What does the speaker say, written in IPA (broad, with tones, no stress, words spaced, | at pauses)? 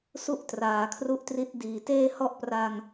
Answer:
su˥˩ʔtraː˩˦kʰru˦˥ʔtri˦˥t̚ diː˨˩ teː˥˩ hɔ˥˩ʔpra˧ŋ